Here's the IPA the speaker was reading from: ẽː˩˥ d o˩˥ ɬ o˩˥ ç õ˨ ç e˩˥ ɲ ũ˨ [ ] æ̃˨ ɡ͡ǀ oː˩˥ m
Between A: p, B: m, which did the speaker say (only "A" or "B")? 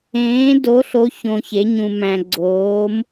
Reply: B